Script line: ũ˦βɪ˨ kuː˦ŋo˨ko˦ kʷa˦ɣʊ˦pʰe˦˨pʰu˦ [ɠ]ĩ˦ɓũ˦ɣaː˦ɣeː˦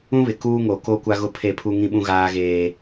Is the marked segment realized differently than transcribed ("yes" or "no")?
yes